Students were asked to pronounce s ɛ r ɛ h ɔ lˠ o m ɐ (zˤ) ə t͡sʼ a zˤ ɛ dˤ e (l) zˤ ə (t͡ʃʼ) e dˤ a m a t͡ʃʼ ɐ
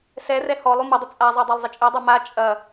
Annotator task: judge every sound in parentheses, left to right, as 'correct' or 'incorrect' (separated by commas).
incorrect, incorrect, correct